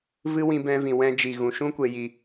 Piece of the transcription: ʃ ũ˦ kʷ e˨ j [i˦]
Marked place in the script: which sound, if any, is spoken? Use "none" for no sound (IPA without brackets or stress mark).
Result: i˨